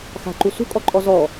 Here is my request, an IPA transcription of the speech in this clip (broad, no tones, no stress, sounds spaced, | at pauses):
x a̤ ǃ u s ṳ kʼ ɔ ǃʼ ɔ z ɔ